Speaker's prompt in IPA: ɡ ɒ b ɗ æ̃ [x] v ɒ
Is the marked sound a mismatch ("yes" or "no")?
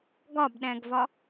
yes